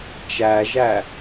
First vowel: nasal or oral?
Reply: oral